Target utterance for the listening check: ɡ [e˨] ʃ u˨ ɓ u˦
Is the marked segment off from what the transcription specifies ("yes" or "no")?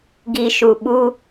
yes